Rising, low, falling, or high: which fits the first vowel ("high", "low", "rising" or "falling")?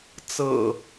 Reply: low